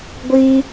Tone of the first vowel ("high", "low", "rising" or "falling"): high